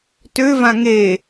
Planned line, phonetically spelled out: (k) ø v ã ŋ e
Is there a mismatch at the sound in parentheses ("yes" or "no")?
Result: yes